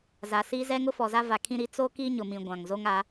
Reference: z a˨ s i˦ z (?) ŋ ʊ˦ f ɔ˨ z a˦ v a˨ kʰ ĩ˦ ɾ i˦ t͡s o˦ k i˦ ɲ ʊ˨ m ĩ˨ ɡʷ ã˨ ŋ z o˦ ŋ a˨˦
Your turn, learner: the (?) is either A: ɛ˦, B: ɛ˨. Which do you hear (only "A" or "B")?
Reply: A